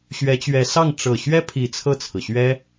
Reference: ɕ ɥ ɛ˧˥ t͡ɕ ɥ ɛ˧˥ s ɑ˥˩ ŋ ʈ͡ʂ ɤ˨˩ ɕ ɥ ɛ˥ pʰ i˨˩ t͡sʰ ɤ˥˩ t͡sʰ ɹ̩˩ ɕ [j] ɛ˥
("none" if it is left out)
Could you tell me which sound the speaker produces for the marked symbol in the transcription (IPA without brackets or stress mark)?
ɥ